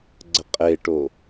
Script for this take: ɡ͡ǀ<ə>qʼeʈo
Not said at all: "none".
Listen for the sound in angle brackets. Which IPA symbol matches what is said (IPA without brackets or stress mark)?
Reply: ə